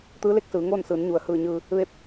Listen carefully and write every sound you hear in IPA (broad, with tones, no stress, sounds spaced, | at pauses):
t̪ ɯː˧˥ l e˧ k̚ s ɯː˩˧ ŋ oː˥˨ n s ɯː˩˧ n ɲ u˩ ə̯ h ɯː˧˩ ɲ ɯː˧ | ʋ e˥˨ p̚